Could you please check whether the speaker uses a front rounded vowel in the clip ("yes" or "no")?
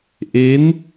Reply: no